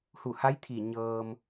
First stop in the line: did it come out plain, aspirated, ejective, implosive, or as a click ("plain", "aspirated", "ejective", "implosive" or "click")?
aspirated